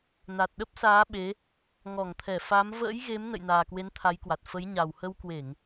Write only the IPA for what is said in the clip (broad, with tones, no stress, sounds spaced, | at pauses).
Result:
n a˨˩ t̚ ɗ ə˦˥ p̚ s aː˨˦ ɓ e˨˦ | ŋ ɔ˧˩ ŋ t̪ʰ ɛ˧˩ f a˨˦ m v ə̰ː˧˥ j ɣ e˨˦ m n ə̰˧˨ j n aː˨˩ k w e˨˦ n t̪ʰ a˨˦ j k w a˨˩ t̚ f ə˨˦ j ɲ a˨˩ w h ə˧ w k w e˧˩˨ ŋ